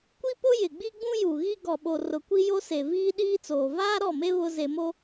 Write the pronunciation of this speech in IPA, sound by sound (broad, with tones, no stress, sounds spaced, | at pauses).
kʷ i˦ p ʊ˦ j ɪ˨ ɡ͡b i˦ ɡ͡b ũ˦ j u˨ ɣ i˦ ɡ ɔ˨ ɓ o˨ r ʊ˨ kʷ i˦ j o˦ s e˨ v iː˦ ɗ iː˦ t͡s oː˨ v aː˦ ɾ ɔ˦˨ m e˦ β ʊ˦ z e˨ m o˦